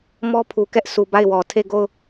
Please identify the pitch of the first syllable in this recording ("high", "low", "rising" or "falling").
high